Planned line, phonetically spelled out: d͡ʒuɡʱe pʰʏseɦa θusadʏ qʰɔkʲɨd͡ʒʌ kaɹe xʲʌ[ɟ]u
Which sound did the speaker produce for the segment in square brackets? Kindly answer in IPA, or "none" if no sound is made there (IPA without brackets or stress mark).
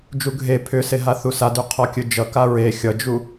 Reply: d͡ʒ